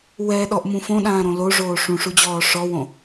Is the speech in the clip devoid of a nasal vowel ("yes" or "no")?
no